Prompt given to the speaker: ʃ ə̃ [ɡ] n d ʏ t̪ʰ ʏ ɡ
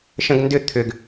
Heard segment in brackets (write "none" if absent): ɡ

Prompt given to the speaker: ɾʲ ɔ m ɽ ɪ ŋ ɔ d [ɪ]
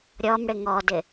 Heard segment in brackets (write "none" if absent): ɪ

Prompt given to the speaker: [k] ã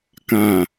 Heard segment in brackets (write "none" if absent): k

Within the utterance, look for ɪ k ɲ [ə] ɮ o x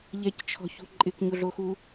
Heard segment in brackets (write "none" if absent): ʊ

